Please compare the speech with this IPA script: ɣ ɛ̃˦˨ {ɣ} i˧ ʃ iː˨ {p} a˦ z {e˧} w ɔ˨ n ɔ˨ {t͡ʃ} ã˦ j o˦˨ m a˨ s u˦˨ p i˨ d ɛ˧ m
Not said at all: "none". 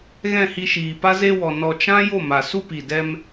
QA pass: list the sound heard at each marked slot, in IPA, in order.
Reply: h, p, e˧, t͡ʃ

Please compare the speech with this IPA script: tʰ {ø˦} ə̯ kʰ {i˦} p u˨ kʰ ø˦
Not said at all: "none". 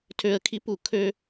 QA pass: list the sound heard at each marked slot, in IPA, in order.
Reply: ø˦, i˦

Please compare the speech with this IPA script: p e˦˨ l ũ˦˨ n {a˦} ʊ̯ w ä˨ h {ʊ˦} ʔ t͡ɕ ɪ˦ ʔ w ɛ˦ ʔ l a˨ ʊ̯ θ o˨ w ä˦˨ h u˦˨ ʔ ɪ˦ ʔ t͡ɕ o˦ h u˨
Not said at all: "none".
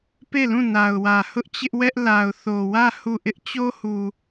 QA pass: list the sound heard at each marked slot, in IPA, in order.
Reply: a˨, ʊ˦

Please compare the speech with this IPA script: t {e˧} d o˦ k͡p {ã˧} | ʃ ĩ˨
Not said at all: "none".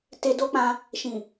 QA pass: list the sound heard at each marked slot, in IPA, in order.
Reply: e˧, ã˧

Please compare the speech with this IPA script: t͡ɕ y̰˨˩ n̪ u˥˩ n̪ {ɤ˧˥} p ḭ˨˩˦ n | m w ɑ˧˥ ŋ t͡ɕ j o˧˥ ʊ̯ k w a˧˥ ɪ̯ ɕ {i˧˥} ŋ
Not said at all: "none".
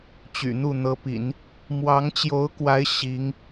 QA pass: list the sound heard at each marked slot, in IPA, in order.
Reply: ɤ˧˥, i˧˥

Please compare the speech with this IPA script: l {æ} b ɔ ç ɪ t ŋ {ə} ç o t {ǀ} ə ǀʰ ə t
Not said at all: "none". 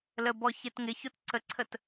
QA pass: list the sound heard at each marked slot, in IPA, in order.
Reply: ə, ɪ, ǀ

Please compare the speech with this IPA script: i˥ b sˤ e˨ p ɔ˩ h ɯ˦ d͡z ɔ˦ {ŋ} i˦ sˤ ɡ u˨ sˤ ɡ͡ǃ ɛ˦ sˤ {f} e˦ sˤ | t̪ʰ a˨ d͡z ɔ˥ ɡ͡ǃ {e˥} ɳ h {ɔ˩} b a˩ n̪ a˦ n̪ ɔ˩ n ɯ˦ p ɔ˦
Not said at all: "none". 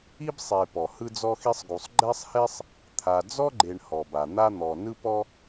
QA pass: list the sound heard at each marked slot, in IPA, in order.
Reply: x, h, e˨, ɔ˩

